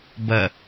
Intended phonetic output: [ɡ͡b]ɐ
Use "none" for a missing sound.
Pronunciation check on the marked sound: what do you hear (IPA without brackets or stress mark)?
b